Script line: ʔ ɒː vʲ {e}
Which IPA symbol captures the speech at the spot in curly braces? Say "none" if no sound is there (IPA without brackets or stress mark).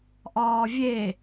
e